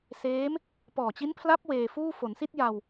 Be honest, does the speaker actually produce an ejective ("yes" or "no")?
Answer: no